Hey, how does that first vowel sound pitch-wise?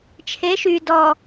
rising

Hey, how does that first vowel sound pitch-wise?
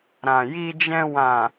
low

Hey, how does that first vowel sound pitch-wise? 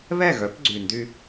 falling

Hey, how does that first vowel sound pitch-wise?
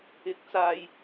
rising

